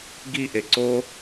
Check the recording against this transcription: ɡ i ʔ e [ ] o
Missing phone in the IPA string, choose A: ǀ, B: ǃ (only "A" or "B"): A